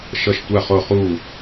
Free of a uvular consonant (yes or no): no